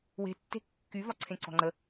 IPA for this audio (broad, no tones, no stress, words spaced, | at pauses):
we̤tːe̤ kːyvɒǀʰẽ ǀɔ̤ŋ͡ǃə